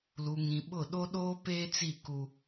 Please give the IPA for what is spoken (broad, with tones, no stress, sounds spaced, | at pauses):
l u˨ ŋ ĩ˨ ɓ ʊ˦˨ ɗ o˦ ɗ oː˦ p eː˦ t͡s i˦˨ k u˦